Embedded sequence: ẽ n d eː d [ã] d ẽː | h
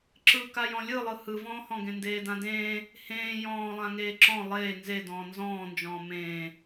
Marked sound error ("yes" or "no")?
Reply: no